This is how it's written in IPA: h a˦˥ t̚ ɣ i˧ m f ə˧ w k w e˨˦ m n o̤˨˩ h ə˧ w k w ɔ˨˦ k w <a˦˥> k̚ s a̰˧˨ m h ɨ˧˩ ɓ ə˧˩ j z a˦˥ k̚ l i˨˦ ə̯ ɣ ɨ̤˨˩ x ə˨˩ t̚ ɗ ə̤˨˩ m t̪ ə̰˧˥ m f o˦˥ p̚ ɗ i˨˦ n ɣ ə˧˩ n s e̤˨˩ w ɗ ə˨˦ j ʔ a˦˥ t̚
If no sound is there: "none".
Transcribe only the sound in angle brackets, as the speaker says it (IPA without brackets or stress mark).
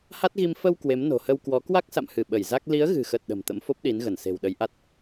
a˦˥